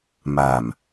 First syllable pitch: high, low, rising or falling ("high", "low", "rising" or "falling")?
low